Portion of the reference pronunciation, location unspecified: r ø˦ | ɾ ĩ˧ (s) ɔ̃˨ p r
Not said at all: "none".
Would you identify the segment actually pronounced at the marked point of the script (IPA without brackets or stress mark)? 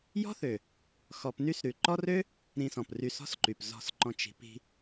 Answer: s